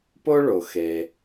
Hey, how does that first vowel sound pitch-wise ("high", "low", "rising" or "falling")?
high